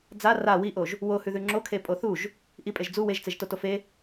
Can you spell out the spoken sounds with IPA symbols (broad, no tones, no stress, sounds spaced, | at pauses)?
d͡z a r a w i ʔ o ʒ | w o h ʉ ð ʉ ŋ͡ǁ o kʰ e pʼ o θ u ʒ | ʔ i pʼ e ʒ d͡z u w e ʒ t͡s e ʒ t o t o f e